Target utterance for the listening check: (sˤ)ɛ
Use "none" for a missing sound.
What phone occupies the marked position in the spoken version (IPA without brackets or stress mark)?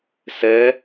s